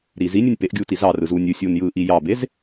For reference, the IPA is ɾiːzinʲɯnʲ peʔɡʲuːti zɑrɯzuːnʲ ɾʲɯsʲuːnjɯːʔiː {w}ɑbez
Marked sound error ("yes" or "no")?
yes